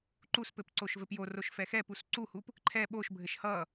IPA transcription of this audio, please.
ǃuspɘp ǀoʃvɘpjoroʃ fɛxɛpus ǀuhup | ǃʰɛ ɓoʃbʱɘʃ hʌ

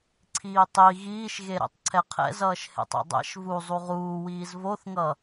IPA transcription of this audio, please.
ǀʰiːtˤi ɣiːʃɣe ɾḛtˤǀʰɛqʰɛ̰zʌːʃ hḛtˤɛ̰dˤɛ̰ʃ vu zˤuʁuː wiːzvoθŋʌ

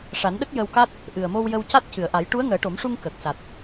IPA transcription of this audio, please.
ʂa˨˩˦nɗə˦˥k̚ jə˧wka˦˥t̚ | ʔɨ˨˩ə̯mo˧wjə˧wca˦˥t̚ cɨ˨˩˨ə̯ʔa˨˩˦j ʈu˧˥ə̯ŋəː˨˩˦ʈo˨˩˦mʂu˧ŋ kə˨˩k̚ sa˨˩t̚

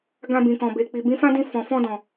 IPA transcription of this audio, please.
ɡã˧bĩ˨kɔ̃˨ be˨ k͡pi˨bĩ˨˦fã˦dĩ˧ fɔ̃˨fɔ̃˧dɔ̃˨

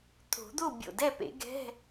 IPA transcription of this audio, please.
t̪ʰo̤˨˩˦d̪o˥˨ bʲo̰˧˩dɛ˥˨pḛ˨˩˦ ɡɛ̤˧˥˧

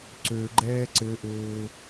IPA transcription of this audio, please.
ǀøɡ͡ǃɛː ǀɘʔɘː

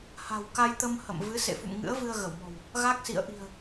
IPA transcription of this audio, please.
ha̤˨˩wka˧jt̪ə˧m hə̰˧˨m vɨ˨˦sḛ˧˨fṵ˧˨m ŋɨ̰˧˥ə̯ vɨ˧ə̯ɣə˧˩wmɔ̤˨˩w | ɣa˦˥k̚sḭ˧˨ə̯ ʔi̤˨˩ə̯

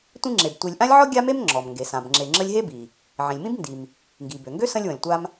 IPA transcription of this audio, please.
tʷĩ˦ŋ͡ǁe˩b tʷi˨lʲʔã˥lʲʕɔ˥ ɡʲa˥me˥mŋ͡ǁɔ˩mŋɡe˩ sã˩bŋ͡ǁe˨ ŋ͡ǁə˦lʲɦe˥bi˩ | ʕĩ˩lʲmĩ˥b ndi˩m | ŋɡi˩bø˩ŋɡø˥ sə̃˦lʲwə̃˩lʲtʷa˦m

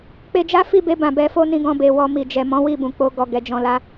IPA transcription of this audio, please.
k͡pe˧d͡ʒa˦fi˦˨be˧ bã˨bɛ˧fo˦nĩ˧ ɡɔ̃˨be˨ wɔ˧mi˨ d͡ʒɛ˨ mɔ̃˨˦wi˦˨bũ˨ k͡po˧ ɡɔ˨ ɡɛ˨ d͡ʒɔ̃˧ la˧

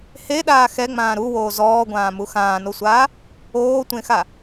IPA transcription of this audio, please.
heɗaː xɛŋ͡mãː ɾuwoː zɔːɡʷãːmu xãːnosʷaː | oːtʷẽxa

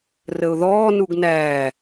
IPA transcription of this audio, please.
rəʊ̯ðɔː nuɡnæː

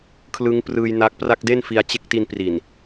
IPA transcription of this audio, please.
kʰlɯ˦˥ŋprɯː˧jna˦˥k̚pra˥˩k̚ de˥˩nfi˧a̯ t͡ɕe˦˥k̚ti˧npri˨˩n

